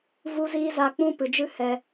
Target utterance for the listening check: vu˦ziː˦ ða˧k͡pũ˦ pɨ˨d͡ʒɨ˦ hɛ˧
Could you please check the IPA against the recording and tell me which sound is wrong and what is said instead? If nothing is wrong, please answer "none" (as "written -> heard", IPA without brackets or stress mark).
ð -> z